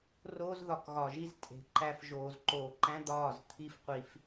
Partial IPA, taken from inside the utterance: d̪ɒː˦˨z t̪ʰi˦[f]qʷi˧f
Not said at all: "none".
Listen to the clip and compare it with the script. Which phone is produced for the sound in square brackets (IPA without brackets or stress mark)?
f